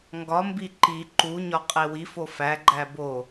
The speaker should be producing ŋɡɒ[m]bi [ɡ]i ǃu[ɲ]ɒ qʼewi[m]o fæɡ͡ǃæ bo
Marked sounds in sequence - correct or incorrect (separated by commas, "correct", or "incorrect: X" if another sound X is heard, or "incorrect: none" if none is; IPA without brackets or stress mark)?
correct, incorrect: ǃ, correct, incorrect: f